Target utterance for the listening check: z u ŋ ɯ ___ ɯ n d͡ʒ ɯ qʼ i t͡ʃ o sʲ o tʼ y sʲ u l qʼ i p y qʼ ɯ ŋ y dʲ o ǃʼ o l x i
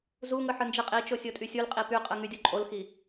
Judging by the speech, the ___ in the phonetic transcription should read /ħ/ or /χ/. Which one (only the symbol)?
ħ